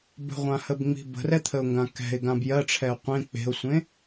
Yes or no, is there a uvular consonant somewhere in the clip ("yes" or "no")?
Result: yes